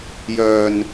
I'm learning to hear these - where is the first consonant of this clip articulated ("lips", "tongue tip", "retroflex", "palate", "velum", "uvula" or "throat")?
palate